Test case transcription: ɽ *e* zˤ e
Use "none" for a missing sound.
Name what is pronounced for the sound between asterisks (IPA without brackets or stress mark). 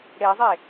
e